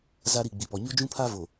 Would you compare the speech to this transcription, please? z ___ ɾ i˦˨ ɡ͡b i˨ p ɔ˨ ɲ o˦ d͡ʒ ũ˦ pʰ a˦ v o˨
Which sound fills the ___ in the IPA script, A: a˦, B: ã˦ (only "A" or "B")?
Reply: A